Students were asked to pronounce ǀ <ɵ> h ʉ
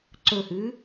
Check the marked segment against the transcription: correct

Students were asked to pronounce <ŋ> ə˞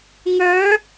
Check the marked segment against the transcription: correct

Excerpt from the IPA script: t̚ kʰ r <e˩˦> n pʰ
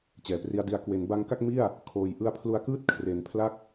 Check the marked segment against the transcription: correct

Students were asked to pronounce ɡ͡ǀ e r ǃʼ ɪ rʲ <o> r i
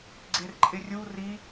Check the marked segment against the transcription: incorrect: u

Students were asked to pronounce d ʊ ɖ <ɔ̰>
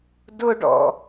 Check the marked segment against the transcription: correct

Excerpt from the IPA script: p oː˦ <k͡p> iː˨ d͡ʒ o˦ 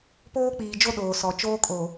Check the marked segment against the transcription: correct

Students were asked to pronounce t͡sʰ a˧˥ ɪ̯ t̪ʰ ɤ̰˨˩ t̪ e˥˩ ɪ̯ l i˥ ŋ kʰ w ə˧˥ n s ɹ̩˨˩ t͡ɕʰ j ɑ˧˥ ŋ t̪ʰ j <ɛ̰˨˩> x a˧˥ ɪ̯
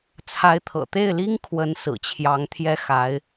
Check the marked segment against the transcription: incorrect: ɛ˥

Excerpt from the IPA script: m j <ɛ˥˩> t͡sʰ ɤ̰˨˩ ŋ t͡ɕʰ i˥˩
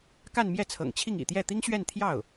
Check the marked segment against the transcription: correct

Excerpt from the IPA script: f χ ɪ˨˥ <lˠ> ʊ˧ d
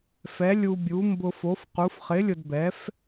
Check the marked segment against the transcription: incorrect: lʲ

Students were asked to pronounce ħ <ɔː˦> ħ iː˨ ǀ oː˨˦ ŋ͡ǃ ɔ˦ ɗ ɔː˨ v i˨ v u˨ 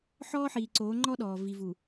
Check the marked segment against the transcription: correct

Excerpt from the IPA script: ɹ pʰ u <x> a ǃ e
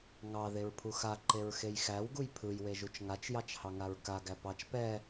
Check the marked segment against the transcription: correct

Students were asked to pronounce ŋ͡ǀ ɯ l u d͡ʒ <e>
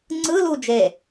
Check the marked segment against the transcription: correct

